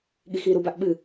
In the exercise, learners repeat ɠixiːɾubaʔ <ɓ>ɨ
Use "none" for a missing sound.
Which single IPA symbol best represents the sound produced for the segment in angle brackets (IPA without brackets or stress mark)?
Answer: ɓ